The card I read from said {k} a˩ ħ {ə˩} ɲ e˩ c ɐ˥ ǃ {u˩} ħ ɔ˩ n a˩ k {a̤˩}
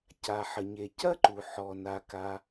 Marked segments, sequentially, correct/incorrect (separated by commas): incorrect, correct, correct, incorrect